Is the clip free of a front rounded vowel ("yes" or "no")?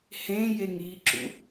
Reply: yes